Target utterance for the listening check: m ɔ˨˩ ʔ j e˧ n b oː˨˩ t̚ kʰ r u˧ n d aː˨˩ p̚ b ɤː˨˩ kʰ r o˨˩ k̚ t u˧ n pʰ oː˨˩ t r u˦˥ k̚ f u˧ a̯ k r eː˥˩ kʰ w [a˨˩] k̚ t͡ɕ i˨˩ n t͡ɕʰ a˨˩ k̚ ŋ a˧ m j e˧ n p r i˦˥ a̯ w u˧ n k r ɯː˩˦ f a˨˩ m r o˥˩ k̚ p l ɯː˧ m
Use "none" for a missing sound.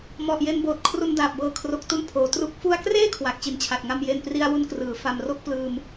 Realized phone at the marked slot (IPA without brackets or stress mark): a˨˩